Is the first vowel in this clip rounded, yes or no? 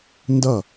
no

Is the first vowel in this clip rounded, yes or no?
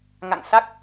no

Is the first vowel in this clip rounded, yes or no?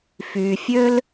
yes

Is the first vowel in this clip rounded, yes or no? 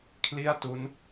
no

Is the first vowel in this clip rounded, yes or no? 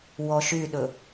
yes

